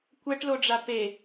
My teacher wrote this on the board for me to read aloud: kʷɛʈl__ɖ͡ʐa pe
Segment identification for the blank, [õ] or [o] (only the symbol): o